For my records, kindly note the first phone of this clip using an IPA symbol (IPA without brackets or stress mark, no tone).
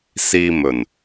s